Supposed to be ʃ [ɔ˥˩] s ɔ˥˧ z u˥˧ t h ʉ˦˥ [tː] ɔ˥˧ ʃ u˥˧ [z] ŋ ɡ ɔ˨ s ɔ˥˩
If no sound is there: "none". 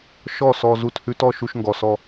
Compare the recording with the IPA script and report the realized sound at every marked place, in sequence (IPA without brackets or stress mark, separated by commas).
ɔ˥˩, t, ʃ